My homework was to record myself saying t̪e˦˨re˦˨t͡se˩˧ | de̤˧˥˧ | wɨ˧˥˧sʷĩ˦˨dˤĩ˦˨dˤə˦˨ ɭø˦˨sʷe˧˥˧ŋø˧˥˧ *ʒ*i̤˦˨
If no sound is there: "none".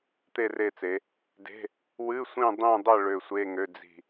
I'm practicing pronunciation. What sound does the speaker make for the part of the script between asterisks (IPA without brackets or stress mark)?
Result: d͡z